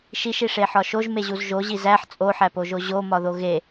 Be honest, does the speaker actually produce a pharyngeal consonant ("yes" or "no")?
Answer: yes